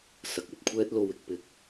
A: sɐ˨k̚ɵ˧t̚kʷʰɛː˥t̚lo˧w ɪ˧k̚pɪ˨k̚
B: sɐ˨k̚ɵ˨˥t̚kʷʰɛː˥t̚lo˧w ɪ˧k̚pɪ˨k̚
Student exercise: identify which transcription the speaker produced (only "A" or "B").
A